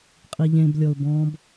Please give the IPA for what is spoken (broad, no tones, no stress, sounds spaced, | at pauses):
qʼ i ʎ ẽ b lʲ ɔ ʊ̯ b ɔ̃ b